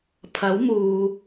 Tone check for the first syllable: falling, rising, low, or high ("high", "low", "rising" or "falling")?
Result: rising